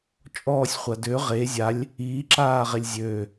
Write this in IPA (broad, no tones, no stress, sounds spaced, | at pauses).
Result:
t͡ʃʼ ɔː sʲ χʷ a d ø ʁ e zʲ a lʲ | iː ǁ aː ʁ e lʲ zʲ øː